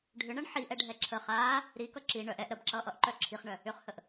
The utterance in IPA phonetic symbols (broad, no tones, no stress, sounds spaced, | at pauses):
ɖʱ ʏ ɳ ʌ ɳ ħ i ʔ ɛ ɖʱ ɛ ǁʰ ə χ aː | ɾ i k ʌ ǁ i ɳ œ ʔ ɛ ʔ ɾ ə b ǁ ʌː ʔ ʌ ʔ ǃ œ ǁʰ i χ ɳ œ | ʏ χ h ə ʔ